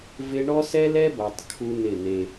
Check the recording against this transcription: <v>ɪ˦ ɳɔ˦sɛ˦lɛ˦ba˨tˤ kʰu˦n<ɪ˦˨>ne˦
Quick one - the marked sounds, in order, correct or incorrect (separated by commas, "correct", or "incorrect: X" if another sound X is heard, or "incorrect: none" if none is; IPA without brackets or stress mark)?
correct, correct